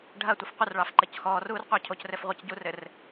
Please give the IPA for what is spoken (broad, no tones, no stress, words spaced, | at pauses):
ɖʱɐtʷəf qʷərɭɑf ǃɘcxɔːruːr qʷɑcʰocrɘf ʁʷɘcɟurɘr